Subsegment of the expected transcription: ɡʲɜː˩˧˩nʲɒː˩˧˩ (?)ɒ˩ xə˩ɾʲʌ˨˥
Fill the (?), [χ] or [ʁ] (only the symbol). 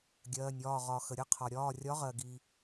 ʁ